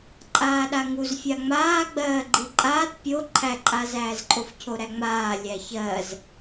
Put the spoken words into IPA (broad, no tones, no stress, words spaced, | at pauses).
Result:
ǃʼaːɗaŋuz fʲaŋ͡maːɡ͡bɜː ɡ͡ǃiǃʼaːt pʲo ǃʰæǃʼazæːzǃʼof cʰoɾæŋ͡maː lʲæçɜz